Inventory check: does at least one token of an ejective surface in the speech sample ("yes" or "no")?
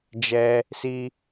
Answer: no